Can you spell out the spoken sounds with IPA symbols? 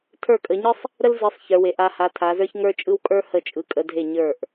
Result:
tʰə˞˥˩kʼə˨˦ɲɯ˥sˤ | ɾə˥lzɯ˨˦sˤ çə˞˨˦we˨˦ʔ a˨˦ha˨˦ tʰa˨˦zə˞˥ç ŋə˞˥t͡ʃʼɯ˥wkʼə˞˥ hə˥˩t͡ʃʼɯ˨˦kʼə˨˦dʱe˥˩ ɲə˞˥˩ʔ

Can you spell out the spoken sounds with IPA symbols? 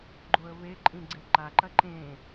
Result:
ɡ͡ǃoə̯βeǃʼĩ ɡ͡ǀeǃaǃɐ ǃẽ

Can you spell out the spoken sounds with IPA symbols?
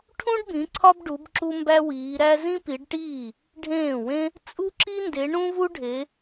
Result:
ʈʰũ˥ɖbĩ˨˦ ǀʰɒ˥bɖu˨˦b ǁu˥mbæ˥wiː˨˦ ɾæ˥ zĩ˥pi˨˦ɖʈiː˥˩ | ɖʱẽː˥˩wẽ˥ | t͡sʼu˥ǁi˥nde˨˦ ɳũ˥vu˥ɖʱe˨˦

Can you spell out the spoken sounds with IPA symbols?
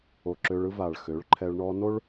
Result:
o˨ǁø˧ɭɯ˦ va˨ɭ xø˨˦ɭǃʰɛ˧ɭ ɳɔ˧no˦ɭ

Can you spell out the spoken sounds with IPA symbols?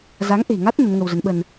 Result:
za˨˦ŋʔe̤˨˩ŋa˦˥t̚ nə˨˦nŋə˧wzə˨˦n ɓə˧n

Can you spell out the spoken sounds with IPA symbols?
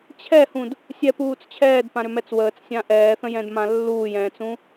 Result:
t͡ɕʰɛhũd | sʲɛpuːt͡s t͡ɕʰɛːdpãɾʏmɛt͡s wəːt͡ssʲã ʔɛːθə̃jɛ̃dmã lːuːjɛ̃ːt͡sũ

